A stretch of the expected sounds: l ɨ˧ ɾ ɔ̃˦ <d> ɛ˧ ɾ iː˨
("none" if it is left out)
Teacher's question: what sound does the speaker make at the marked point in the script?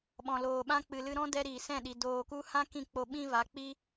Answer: d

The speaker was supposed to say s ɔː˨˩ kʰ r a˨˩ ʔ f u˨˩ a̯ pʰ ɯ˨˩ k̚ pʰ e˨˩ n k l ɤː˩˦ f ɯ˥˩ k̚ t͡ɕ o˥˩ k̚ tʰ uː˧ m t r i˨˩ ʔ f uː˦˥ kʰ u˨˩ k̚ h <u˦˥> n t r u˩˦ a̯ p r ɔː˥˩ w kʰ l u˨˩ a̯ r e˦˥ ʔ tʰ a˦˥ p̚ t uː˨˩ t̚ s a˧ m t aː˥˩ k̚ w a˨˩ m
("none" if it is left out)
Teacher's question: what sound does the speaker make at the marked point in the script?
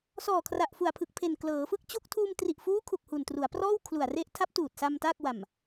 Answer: u˨˩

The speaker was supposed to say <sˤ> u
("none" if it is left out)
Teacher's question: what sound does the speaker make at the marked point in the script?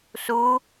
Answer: s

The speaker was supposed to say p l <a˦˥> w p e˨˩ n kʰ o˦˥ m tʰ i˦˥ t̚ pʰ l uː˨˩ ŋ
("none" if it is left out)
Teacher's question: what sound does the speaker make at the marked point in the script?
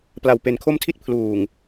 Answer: a˨˩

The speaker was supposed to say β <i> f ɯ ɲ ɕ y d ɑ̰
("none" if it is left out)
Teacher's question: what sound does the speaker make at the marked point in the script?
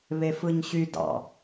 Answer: e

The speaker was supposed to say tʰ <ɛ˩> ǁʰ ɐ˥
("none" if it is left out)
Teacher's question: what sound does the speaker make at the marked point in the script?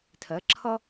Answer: ɛ˩˥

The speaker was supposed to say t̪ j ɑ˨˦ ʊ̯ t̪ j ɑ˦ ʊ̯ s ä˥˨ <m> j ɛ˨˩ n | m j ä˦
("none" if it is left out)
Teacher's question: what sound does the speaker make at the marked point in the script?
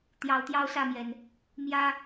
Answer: m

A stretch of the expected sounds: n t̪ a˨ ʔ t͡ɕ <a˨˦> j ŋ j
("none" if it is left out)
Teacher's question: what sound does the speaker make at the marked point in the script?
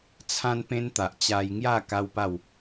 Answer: a˧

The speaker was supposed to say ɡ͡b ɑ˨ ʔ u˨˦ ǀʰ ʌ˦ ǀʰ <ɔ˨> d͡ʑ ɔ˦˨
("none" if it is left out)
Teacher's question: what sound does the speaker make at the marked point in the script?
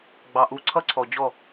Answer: ɔ˨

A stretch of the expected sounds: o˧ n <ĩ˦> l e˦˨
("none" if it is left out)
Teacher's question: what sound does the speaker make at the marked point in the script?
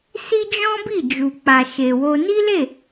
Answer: i˦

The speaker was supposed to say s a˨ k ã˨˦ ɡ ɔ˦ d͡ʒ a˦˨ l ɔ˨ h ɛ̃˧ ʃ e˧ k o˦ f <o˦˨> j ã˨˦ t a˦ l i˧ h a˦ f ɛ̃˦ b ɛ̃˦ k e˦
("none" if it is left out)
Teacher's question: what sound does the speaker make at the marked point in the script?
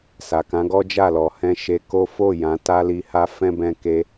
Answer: o˦˨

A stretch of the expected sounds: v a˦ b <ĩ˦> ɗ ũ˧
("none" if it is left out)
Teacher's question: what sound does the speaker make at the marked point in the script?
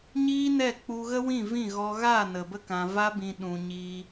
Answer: ĩ˧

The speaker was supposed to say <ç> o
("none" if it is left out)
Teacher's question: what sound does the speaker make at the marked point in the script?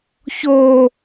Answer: ç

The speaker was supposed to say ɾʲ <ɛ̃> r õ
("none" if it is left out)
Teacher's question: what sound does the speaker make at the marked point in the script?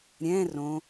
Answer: ɛ̃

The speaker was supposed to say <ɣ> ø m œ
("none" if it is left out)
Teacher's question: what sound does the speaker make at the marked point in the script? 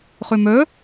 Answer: χ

